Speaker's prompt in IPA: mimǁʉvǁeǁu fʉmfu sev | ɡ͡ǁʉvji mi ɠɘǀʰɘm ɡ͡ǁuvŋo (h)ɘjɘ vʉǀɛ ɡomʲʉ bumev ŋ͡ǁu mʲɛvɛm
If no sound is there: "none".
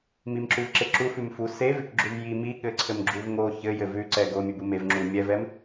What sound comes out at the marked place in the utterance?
ç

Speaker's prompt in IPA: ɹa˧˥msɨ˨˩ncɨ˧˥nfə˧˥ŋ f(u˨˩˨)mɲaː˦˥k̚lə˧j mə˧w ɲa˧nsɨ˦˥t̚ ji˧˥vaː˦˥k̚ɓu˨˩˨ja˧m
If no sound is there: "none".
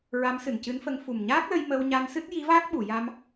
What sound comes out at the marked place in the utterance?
u˨˩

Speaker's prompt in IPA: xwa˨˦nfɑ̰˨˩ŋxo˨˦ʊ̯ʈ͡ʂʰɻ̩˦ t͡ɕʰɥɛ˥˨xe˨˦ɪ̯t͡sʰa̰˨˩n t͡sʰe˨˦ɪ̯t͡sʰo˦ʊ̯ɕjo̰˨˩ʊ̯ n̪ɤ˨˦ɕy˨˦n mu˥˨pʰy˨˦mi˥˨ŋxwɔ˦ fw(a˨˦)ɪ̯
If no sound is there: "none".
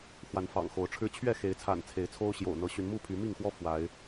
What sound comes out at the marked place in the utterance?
a˨˦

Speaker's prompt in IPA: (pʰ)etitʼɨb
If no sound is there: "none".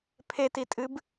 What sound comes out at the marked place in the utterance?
pʰ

